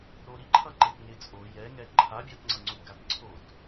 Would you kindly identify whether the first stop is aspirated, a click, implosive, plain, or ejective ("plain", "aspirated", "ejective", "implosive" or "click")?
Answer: click